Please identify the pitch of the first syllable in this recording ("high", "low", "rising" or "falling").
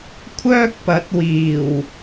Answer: high